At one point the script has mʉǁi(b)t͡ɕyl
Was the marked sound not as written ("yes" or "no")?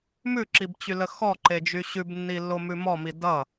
no